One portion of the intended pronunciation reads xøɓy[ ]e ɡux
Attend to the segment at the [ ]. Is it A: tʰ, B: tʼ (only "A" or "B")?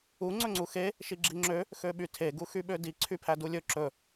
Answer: A